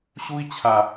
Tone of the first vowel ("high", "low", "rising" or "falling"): high